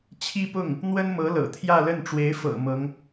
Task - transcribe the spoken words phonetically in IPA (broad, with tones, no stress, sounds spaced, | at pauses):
t͡ɕʰ i˥ p ʊ˥˩ ŋ | n̪ w ə˥ n m ɤ˧˥ l ɤ̰˨˩ t̪ʰ j ä˥˧ l ə˥˩ n ʈ͡ʂ w e˧˥ ɪ̯ f ɤ̰˨˩ m ɤ˧˥ ŋ